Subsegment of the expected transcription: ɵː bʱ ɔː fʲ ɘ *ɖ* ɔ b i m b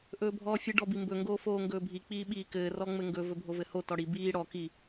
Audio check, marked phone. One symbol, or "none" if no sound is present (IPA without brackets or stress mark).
ɖ